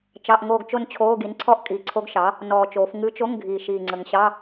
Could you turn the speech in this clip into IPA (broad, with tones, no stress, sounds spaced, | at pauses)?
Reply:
t͡ʃ ɑ˧˥˧ ʔ ŋ oː˥˧ ɡ t͡ʃ o˥˧ n t͡ɕʰ oː˧˥˧ ɡ i˩˥ n ǀʰ ɔ˥˧ ʔ kʼ iː˨˩ ǀʰ o˧˥ ɡ ʃ ɑ˩˥ | n ɔː˨˩ t͡ʃ oː˩˧ f ŋ ɨ˧˥ t͡ʃ o˧˥˧ ŋ ɡʱ iː˨˩ ʃ iː˨˩ ŋ͡ǀ ə˨˩ ŋ ɕ ɑ˧˥˧